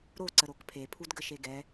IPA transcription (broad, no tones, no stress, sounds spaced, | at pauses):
ɾ o ǀ ə ɾ o k pʰ e pʰ u d ɡ ə ʃ e ɡ ɛ